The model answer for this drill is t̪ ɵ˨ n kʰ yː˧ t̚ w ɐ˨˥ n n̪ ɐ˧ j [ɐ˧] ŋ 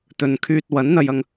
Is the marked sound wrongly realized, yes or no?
no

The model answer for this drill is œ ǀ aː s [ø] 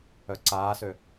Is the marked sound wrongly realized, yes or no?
no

